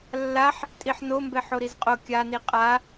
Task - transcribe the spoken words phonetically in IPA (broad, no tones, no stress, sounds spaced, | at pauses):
lː a ħ | tʼ i ħ n o m b ɛ ħ o ɾ i z qʼ o kʲ a n i qʼ a